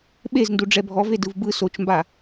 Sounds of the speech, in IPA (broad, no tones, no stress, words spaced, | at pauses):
ɓezndu ɖ͡ʐɛbʱɔve dɯvbɯ sot͡ʃmba